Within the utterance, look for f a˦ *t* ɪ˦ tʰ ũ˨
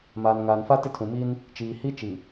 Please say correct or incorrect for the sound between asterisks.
correct